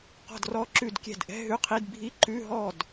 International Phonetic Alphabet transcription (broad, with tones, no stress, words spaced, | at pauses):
qɔ̤˥˩drɔ˧˥˧ ǁʉ˥˩dkʲɛ̤˥˩d ʔɛ̤˧˥˧ɦʉ˧˥˧qʰi˧˥˧d bʱi˧˥˧ ǃʉ˧˥˧ ɦɔ˥˩d